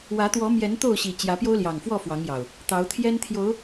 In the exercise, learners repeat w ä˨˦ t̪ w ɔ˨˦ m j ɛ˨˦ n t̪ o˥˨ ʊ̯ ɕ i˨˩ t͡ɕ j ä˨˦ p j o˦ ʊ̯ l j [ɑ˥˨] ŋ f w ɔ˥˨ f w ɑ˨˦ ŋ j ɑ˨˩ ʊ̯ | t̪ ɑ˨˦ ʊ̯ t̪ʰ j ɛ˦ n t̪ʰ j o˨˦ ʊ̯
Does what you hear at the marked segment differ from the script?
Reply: yes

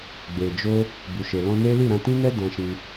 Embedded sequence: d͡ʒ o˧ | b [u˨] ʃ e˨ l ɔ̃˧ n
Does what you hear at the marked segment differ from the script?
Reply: no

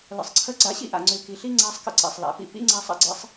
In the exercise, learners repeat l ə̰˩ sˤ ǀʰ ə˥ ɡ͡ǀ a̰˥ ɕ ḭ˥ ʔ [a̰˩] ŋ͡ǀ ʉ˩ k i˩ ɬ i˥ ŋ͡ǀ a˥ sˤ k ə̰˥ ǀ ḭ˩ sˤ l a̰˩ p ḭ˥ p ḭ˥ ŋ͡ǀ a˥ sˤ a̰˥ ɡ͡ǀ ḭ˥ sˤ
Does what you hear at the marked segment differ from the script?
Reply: no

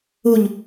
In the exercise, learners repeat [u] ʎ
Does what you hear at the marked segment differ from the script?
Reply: no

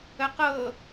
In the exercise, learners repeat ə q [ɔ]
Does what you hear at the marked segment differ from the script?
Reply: yes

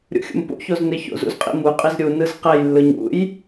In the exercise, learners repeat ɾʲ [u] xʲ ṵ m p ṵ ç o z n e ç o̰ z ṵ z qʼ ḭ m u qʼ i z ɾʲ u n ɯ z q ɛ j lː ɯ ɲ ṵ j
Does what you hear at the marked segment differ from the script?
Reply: yes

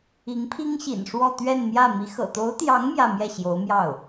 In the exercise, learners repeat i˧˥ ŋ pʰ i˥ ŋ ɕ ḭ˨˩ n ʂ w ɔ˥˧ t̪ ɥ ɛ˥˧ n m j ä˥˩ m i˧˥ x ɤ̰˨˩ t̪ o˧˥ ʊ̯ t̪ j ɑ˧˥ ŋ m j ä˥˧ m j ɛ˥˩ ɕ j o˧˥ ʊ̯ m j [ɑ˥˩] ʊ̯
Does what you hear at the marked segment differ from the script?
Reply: no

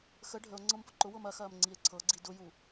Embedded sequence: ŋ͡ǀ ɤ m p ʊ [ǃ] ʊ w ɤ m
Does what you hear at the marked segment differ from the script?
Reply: no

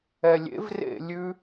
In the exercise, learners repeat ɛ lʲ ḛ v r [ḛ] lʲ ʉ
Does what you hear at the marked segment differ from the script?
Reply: no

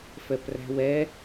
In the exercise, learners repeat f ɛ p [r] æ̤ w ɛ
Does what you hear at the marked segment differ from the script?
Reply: no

